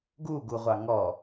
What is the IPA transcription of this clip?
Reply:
ɡu ɡuʁʷɑŋɔ

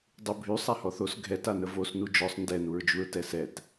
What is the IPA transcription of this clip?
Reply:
dˤubʱy sˤahɔθos ɡʱɛt anəvos nud͡ʒɔsˤ ndɛ nuɹd͡ʒuɹtɛsɛt

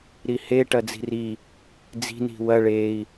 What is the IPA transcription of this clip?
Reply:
ɾihe ʈɐd͡zi̤ri | d͡zi̤ ni̤wɐ ɭei̯

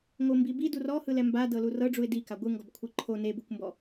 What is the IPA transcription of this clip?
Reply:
ŋombibi durɔhɯlɛ mbadɤlu rɤɖ͡ʐuɪ̯ di kaɡʷɯŋɡɔb kʷʰɯǃʰo nebukʷmbɔ

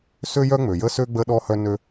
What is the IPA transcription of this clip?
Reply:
sø˥jœ˥ ŋ͡mø˩jə˥sø˥ɡ͡bə˦ ɗɔ˦hœ˦nø˦

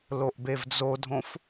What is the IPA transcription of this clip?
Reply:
loʔbevd͡zodʱõf

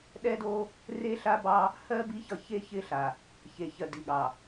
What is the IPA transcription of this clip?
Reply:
ɗɛ˦do˦ | re˦ɬa˦bɑ˦ | hɜ˦ bi˦çʌ˦˨çe˦ çɪ˦ɬa˨ | çe˨çɜ˨ di˨ɠɑ˨

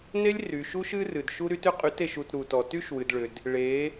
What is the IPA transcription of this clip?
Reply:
ne˦lʲry˨ʃu˦ʃ ɨ˦rɨ˨d ʃu˦ɾy˦tʏ˦qʼy˨˦t e˨ʃu˨t ɾu˨tɔ˨ ty˦ʃwɨ˨dɭʏ˨d | ɭe˨˦

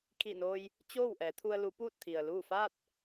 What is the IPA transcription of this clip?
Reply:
kʰi˧˩noː˧j | t͡ɕoː˥˨wʔɛː˩˧t̪ʰu˧ə̯ lu˩˧ puː˥˨t̚t̪ʰi˩ə̯luː˥˨ faː˥˨t̚

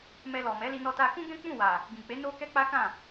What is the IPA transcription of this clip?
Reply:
mɛ˧lɔ˨mɛ˨˦ li˧nɔ˧ta˧kũ˦ ɡɛ̃˦k͡pũ˦˨wa˨ | ɡĩ˨k͡pe˨˦ no˦ kɛ˦k͡pa˦kã˦˨

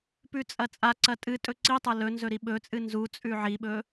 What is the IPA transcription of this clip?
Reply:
pʉt͡sʼɐt͡sʼaǀɐ tʼɨ tʼɵǀitˤɐ lɵ nzɵɾiɓɵt͡sʼɨ nzu t͡sʼʉʕiɓɵ

